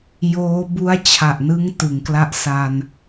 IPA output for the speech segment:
j oː˦˥ b u˦˥ a̯ t͡ɕʰ a˨˩ ʔ n ɯ˦˥ ŋ t ɯ˩˦ ŋ k l a˦˥ ʔ s a˧ n

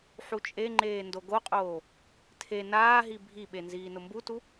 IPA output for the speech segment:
ħ u t͡ʃʼ e ŋ͡ǃ eː n d o ɡ o qʼ oː | tʰ e n aː ɦ i bʱ i ɓ e n z iː n ʊ m b u t u

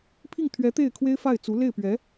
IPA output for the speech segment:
pʰ i˥˩ ŋ t̪ʰ ɥ ɛ˧˥ t̪ e˥˩ ɪ̯ kʰ w e˥ ɪ̯ f a˥˩ ɪ̯ t͡s u˧˥ l e˥˩ ɪ̯ p ɥ ɛ˧˥

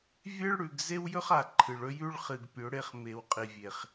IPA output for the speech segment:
vʲ e˦ ɭ ɽ ʉ˨ ɡ z e˦ w j ɵ˦ χ a˨ ǃʰ ɨ˨ ɭ ɵ˦ j ʉ˦ ɭ χ ɨ˨ ɡ pʲ ɵ˨˦ ɽ e˦ χ m e˨ w qʼ i˨ vʲ e˨ χ

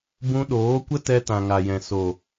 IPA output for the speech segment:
b ũ˧ ɗ oː˨˦ kʷ ə˦ t ɛ˧ t ã˨ ŋ a˨ j ɛ̃˨ s o˨

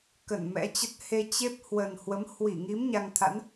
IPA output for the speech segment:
k ə˧˩ n m ɛ̰˧˥ t͡ɕ ə˦˥ t̚ h e˧ t͡ɕ e˦˥ p̚ h w ə˨˩ n h w ə˨˦ m h w i˧˩ ŋ i˨˦ m ɲ a˧ ŋ t̪ʰ a̰˧˥ n

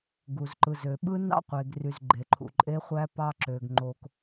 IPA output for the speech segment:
ɡ u˨ z ǃ ɯ˨ z ø˨ ɓ ɯ˦ n ɑ̰˦ qʷ e˨ ɡ r y˨ z ɡ͡ǃ e˨ ǃʰ ṵ˨ ǃʼ e˦ χʷ æ˦ p ɑ˦ ǁ ø˨ ɡ ŋ͡ǃ o˨ k

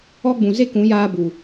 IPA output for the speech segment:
ɔ˦ ɡ͡b ũ˨ z e˦ k ũ˨˦ j aː˦ b u˨

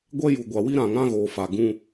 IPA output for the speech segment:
ɡʷ ɛ˦ j u˨ ɡʷ a˨ w i˦ ɾ ã˨ ŋ ã˦ ɣ oː˨ f a˨ ɡ ũ˦

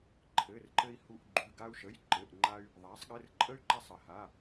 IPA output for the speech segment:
ǃʰ ɘ˧˥˧ r ǃ ɘ˥ i̯ h u˥ ʔ ɡ͡ǃ ʉ˧˥˧ ɡ a˥ u̯ ʃ ə˧˥˧ j ǃ ɘ˧˥˧ ʔ ŋ͡ǃ a˥ y̯ | ðˤ a˨˥ sˤ ɠ ɘ˧˥˧ r ǃʼ ə˥ y̯ ǃ a˥ sˤ ɘ˨˥ h a˧˥˧

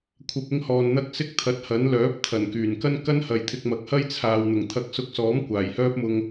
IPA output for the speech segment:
kʷʰ ɐ˧ p̚ ɪ˥ ŋ h ɔː˧ n n̪ ɐ˥ k̚ s ɪ˥ k̚ t̪ʰ ɐ˨˥ t̚ h ɐ˨˥ n l œː˨˥ p̚ t̪ʰ ɐ˨˩ n k yː˨˩ n k ɐ˥ n k ɐ˥ n h ɐ˨ j t̪ʰ ɪ˧ k̚ m ɐ˨˥ k̚ h ɐ˥ j t͡sʰ aː˨ w n̪ ʊ˨˩ ŋ t̪ʰ ɐ˨˥ k̚ s ʊ˨˥ k̚ s ɔː˨˥ m kʷ aː˨˩ j h œː˥ p̚ m ʊ˧ ŋ

